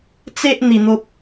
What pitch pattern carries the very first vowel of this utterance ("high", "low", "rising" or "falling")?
high